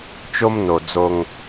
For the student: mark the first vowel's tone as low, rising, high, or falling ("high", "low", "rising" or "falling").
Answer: high